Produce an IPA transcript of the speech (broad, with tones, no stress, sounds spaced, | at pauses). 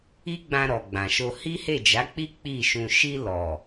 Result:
i˦ ɡ͡b ã˧ ɾ ɔ˨ ɡ͡b ã˨ ʃ o˧ h i˦ h e˦˨ d͡ʒ a˨˦ k͡p i˦ k͡p i˦˨ ʃ ũ˧ ʃ i˧ l ɔ˨